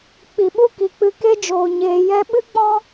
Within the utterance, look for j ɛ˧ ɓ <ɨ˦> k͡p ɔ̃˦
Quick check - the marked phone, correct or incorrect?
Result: correct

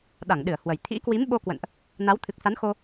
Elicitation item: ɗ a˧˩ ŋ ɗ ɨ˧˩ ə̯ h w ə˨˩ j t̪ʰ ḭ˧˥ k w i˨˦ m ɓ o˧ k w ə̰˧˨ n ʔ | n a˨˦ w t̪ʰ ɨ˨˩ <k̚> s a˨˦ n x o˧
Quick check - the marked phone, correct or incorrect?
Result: correct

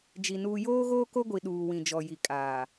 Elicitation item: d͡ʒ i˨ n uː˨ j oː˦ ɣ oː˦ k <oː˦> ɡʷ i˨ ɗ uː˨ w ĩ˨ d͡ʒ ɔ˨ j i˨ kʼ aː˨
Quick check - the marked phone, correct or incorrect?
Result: incorrect: o˦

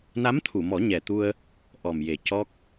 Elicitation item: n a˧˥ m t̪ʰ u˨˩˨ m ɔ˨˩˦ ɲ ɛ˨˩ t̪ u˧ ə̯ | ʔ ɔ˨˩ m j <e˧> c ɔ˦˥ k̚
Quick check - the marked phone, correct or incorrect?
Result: incorrect: e˨˩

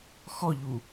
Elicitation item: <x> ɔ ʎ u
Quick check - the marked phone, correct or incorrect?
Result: correct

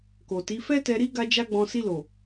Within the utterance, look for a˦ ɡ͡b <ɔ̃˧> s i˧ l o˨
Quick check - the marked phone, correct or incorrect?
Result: correct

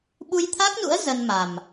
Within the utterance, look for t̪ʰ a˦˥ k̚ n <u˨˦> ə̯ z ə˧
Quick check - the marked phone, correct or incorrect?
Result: incorrect: ṵ˧˥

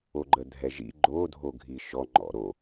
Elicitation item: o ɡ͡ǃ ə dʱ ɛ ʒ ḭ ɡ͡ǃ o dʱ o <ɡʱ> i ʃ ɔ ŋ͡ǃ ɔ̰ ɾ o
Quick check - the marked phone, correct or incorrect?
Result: correct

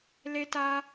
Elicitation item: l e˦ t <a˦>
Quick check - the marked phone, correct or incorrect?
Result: correct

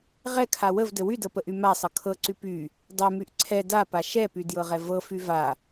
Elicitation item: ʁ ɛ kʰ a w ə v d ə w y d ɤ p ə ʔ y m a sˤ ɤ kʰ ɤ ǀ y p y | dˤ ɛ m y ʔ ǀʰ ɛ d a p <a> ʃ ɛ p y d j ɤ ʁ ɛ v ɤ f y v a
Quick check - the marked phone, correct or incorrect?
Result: correct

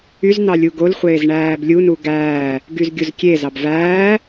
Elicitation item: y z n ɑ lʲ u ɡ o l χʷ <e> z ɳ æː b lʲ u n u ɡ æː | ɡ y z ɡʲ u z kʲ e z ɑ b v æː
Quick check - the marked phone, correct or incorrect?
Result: incorrect: eː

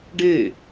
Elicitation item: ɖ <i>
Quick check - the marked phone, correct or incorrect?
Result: incorrect: e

